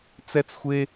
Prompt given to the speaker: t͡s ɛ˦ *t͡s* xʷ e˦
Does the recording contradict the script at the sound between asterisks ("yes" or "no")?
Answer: no